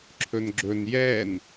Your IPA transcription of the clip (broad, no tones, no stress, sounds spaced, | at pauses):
ǁʰ ɵ n ɡ͡ǁ ɵ n j ɛ n